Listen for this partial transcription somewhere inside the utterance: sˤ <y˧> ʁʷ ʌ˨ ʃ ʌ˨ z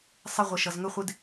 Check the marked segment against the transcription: incorrect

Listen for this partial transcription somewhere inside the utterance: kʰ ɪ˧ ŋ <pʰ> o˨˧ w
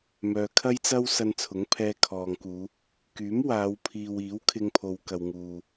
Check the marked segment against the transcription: correct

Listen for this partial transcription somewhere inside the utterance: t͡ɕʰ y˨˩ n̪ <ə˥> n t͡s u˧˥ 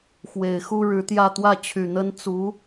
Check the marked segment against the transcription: correct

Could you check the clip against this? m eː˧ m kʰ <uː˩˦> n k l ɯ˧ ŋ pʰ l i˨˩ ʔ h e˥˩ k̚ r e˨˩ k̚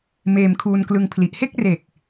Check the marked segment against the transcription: incorrect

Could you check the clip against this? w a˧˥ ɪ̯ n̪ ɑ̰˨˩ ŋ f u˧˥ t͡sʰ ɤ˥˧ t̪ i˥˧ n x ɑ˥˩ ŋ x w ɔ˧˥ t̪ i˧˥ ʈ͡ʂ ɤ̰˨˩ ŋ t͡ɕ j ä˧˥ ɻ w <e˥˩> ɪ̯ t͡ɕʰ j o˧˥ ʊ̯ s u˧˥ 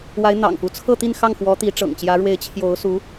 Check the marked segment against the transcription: incorrect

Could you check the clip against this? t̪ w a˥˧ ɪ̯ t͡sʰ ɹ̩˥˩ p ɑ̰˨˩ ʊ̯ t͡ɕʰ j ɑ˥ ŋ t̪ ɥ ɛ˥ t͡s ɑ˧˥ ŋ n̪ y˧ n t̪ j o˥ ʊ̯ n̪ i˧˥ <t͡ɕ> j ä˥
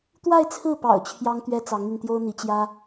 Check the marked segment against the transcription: correct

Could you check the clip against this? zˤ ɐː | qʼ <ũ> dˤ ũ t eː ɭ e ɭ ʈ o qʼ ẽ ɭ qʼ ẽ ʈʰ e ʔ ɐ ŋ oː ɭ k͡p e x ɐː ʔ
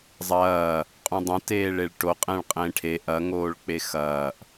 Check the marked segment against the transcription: correct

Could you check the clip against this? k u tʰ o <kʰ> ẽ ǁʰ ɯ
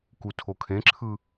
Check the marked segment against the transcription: correct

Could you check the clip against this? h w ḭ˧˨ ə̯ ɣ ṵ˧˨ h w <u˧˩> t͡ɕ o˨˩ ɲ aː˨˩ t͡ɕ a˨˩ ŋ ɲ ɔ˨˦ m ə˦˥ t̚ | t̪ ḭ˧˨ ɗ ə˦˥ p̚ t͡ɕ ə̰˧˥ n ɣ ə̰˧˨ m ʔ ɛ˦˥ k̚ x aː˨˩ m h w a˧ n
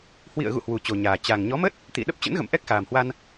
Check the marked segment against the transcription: incorrect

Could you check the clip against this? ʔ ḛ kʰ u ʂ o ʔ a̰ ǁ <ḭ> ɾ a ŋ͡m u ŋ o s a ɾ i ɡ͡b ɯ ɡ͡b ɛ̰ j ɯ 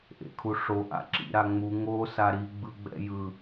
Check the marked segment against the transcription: correct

